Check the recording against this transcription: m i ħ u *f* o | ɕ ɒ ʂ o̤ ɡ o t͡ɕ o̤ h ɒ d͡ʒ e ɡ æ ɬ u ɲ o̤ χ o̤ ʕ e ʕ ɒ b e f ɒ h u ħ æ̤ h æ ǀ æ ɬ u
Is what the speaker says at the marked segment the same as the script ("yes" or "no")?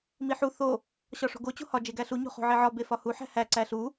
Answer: no